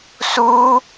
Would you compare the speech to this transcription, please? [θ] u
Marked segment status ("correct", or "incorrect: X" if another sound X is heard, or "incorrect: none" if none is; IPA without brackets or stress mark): incorrect: s